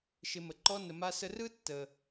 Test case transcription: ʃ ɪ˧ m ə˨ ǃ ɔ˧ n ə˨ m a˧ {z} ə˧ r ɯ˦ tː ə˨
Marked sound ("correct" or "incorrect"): incorrect